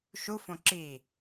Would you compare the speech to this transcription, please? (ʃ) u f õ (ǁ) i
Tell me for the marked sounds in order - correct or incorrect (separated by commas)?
correct, correct